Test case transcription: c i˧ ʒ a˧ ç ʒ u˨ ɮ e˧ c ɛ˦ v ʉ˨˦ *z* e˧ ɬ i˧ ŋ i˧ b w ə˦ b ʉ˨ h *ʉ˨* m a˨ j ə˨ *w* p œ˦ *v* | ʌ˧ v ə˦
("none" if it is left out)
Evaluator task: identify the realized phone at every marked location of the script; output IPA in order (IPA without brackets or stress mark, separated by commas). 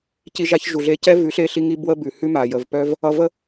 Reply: ɬ, ʉ˦, v, v